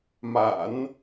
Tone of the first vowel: low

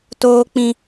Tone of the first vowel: high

